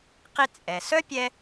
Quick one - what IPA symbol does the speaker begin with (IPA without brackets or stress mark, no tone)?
q